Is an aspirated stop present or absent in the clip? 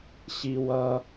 absent